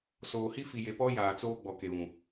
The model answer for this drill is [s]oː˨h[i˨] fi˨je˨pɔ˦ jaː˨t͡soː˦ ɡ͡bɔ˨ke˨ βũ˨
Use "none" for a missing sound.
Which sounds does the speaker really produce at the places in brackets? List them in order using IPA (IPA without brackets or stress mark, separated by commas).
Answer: s, i˦